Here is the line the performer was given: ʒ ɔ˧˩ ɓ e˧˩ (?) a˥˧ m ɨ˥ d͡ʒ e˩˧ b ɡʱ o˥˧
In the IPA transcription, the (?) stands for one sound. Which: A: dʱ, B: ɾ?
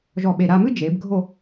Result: B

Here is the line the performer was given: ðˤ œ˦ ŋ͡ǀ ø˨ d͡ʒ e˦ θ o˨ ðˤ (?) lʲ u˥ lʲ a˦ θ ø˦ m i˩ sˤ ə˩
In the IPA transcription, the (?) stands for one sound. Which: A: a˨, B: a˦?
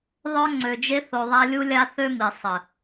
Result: B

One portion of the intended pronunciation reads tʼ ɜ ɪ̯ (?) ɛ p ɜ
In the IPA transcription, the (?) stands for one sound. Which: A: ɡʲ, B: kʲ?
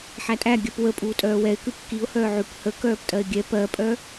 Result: A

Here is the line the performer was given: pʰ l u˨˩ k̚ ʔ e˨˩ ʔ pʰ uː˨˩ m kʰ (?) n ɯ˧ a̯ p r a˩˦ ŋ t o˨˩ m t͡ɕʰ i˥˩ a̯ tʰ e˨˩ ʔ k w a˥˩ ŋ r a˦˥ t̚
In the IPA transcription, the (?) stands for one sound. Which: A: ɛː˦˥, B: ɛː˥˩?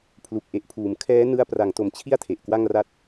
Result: A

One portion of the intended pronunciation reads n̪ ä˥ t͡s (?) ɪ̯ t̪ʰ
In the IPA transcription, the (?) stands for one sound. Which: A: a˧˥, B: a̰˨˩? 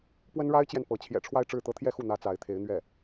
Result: A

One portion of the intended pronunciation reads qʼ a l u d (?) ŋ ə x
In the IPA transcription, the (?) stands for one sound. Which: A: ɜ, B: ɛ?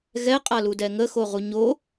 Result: B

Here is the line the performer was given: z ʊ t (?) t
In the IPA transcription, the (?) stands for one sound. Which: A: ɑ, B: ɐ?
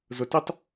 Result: A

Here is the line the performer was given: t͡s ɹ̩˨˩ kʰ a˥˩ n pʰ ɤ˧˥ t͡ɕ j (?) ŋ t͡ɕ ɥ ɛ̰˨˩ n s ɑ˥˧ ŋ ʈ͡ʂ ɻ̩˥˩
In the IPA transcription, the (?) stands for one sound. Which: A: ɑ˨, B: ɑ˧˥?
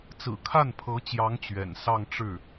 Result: B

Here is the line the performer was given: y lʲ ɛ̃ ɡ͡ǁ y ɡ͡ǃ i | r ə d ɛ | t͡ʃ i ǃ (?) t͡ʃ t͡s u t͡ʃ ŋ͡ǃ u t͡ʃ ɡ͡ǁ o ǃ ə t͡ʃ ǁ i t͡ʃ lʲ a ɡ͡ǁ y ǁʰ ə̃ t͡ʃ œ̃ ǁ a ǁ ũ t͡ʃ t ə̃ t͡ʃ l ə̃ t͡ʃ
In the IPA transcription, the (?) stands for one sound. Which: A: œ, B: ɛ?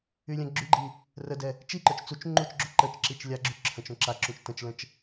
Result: A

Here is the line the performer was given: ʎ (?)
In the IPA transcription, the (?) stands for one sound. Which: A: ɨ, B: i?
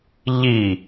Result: B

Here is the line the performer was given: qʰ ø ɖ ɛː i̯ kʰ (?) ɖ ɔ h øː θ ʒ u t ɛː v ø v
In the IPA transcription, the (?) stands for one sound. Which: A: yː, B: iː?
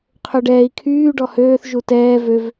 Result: A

